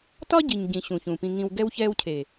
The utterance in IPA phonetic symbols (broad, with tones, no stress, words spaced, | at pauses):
tɒ˦ ɟi˨ɲɟĩ˨ ɕũ˨çũ˨ pĩ˨ŋĩ˨w ɡɛ˦wçɛː˦wcʰe˨